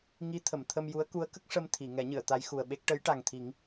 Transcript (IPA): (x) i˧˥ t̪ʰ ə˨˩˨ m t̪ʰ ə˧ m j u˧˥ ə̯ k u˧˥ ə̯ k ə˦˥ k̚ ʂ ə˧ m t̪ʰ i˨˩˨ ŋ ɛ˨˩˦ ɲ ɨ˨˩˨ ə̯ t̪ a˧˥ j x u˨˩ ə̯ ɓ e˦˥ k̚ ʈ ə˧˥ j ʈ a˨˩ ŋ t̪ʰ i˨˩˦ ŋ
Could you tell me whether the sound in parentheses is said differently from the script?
yes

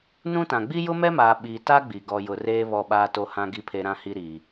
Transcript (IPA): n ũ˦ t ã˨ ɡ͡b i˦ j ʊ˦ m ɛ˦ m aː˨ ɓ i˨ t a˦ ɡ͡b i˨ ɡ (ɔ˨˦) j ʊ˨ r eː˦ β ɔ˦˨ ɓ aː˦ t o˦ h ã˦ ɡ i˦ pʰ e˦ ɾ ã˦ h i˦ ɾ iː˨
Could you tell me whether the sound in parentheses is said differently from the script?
yes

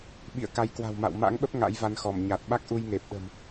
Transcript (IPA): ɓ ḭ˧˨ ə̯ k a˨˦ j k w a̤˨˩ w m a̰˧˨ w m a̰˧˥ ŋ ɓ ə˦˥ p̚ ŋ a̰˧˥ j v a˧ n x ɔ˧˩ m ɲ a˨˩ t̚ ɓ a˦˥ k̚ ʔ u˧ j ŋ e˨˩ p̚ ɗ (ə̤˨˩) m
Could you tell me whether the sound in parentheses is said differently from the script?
no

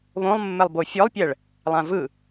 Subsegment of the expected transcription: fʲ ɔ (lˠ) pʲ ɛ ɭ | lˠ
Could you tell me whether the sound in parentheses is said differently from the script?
no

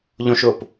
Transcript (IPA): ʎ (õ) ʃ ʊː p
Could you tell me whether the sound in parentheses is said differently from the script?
no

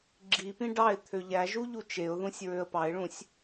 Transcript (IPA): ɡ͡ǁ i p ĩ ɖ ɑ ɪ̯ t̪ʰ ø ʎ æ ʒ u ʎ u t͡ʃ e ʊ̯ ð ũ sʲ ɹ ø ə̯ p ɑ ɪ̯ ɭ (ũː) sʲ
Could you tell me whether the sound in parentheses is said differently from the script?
yes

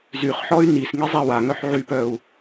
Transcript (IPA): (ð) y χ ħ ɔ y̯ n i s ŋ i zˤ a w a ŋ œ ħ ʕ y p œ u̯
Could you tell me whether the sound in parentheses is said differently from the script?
yes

